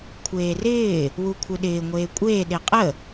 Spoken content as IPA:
kʷʰ eː r ɪː | w u kʷʰ ɯ ɗ ɪː ŋʷ eː kʷʼ eː ɗ e qʼ ə

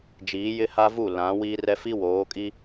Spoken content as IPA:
d͡ʒ iː˨˦ j ɪ˦ h a˦ v u˦˨ l ã˨˦ w i˦ r ɛ˦ f i˦ w oː˨˦ kʼ i˦

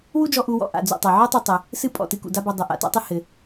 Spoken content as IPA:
w u˥ d͡ʒ ɔ˧ ʔ u˧ w ɔ̰˧ ʔ a̰˩ d͡z ṵ˩ tˤ a˩ ʕ u˥ tˤ u˧ tˤ ɘ˩ | s ɨ˥ pʼ ɔ̰˩ t ɨ˧ k ṵ˩ d a˥ b ɔ˧ dˤ ɘ˩ ʔ a̰˩ t a̰˥ tˤ ɨ˥ h ɘ˩

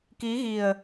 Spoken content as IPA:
k i˨˦ ɣ i˨˩ ə̯

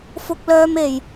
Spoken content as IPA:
f ʊ˥ k̚ l œː˥ m e˧ j

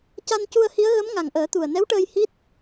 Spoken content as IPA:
c a˧ n c u˧ ə̯ h i˧˥ ə̯ ɣ ə˧˥ m ŋ a˨˩ ŋ ʔ əː˨˩˦ t̪ u˨˩ ə̯ n ɛ˧˥ w ʈ əː˧ j h i˦˥ t̚

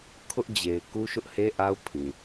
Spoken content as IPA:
kʰ ʊ˦ ʔ d͡ʑ e˨ ɪ̯ k u˦ ʃ ʊ˦ ʔ h e˦ ʔ a˦ ʊ̯ pʰ ĩ˨

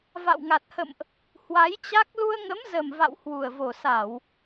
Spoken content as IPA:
v a̰˧˨ w ŋ a˨˩ t̚ h ə̰˧˨ m ʔ | h w a˨˦ j t͡ɕ a˦˥ k̚ l u˧ ə̯ ŋ ə˨˦ m z ə˨˩ m v a̰˧˨ w h w u˨˩ ə̯ v o˨˩ s a˧˩˨ w

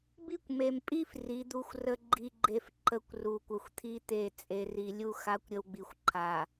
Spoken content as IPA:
b i˦ kʷ m e˨ m pʼ i˦ f r i˨˦ d̪ u˦ xʷ r ə˦ ɡ͡ǃ i˨ ɡ͡ǃ e˨ f ǃ ə˦ kʷ r u˨ kʷ ə˨ xʷ t̪ʰ i˦ t̪ e˦˨ t͡sʼ e˨ r i˨ lʲ u˦ x a˨˦ kʷ ɾʲ ə˨ w ɡ͡b i˨ xʷ ǃʰ a˨

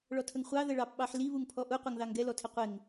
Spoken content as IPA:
ɭ ɔ tʰ ə ŋ χʷ ɑ ð ə ɭ ɑ p ɓ ɑ ħ l i β u ŋ pʰ ɔ ʔ u qʷ ʌ ŋ ð ɑ ŋ ɡ ɛ l ɔ tʰ ɪ qʷ ɪ ŋ

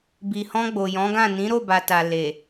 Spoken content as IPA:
b i˨ h ɔ̃˧ ɡ͡b o˨ j ɔ̃˨˦ ɡ ã˦˨ n ĩ˨˦ ɾ o˦˨ b a˨ t a˨ l e˨

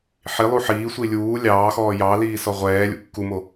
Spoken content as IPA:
ħ i lˠ u ħ iː sʷ i lʲ uː lʲ ɑː x ɔː j ɑː l iː s ɔ ʁʷ ɛː lʲ ṵ kː u m o

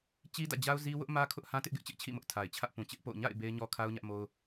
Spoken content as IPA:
t͡ɕ i˦ d ä̰˦˨ d͡ʑ a˦ ʊ̯ z i˦ w ʊ˦ ʔ m ä˦ kʰ ʊ˦ ʔ h ã˦ t ɪ˦ ʔ ɡ ɪ˦ ʔ t͡ɕ ɪ˦ ʔ t͡ɕʰ ḭ˦˨ m ʊ˦ ʔ tʰ a˨ ɪ̯ t͡ɕʰ ä˦ ʔ p ũ˨ t͡ɕ ɪ˦ ʔ p o̰˦˨ ʊ̯ ɲ a̰˦˨ ɪ̯ b e˦ ɪ̯ ɲ ɔ˦ kʰ a˦ ʊ̯ ɲ ä˦ ʔ m o˦ ʊ̯

